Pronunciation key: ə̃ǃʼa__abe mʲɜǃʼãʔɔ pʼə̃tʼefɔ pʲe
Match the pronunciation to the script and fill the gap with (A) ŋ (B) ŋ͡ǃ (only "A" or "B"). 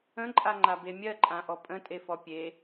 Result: B